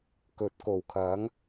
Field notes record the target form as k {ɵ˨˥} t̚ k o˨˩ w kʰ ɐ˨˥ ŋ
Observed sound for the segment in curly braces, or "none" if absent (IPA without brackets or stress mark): ɵ˨˥